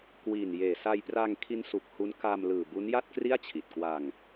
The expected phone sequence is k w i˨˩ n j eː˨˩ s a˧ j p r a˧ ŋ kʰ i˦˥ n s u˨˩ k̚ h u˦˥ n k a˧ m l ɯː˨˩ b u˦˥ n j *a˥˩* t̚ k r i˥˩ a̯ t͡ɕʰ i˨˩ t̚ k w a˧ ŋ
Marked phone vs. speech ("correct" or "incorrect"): correct